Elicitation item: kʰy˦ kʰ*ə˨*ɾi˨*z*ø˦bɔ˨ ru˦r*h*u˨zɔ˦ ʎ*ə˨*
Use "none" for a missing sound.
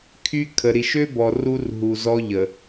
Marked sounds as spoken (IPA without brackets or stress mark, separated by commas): ə˨, ʃ, ɦ, ə˨